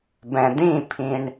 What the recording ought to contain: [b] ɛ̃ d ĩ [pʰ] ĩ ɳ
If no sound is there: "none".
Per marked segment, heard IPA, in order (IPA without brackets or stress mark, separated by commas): b, pʰ